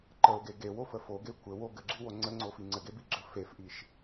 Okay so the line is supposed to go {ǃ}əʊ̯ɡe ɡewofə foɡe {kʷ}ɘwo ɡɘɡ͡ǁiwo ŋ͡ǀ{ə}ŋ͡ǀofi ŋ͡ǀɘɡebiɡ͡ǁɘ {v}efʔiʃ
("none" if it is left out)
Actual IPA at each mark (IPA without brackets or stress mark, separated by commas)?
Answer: ǃ, kʷ, ə, f